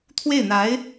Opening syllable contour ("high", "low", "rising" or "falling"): falling